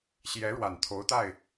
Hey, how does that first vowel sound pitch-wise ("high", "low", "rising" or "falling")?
rising